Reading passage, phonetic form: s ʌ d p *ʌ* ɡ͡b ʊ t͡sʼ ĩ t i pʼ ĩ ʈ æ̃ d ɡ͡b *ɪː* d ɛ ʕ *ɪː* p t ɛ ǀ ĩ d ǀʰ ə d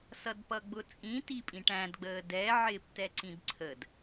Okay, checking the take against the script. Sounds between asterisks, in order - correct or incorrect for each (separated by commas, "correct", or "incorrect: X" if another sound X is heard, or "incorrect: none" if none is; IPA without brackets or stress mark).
correct, incorrect: əː, correct